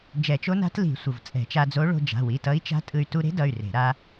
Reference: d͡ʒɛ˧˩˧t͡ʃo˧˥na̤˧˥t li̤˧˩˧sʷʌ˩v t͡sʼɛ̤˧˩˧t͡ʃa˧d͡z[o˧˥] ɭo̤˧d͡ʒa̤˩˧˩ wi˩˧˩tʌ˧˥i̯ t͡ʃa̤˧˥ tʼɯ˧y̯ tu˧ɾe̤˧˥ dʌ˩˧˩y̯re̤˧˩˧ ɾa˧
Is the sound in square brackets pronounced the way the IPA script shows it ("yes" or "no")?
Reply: yes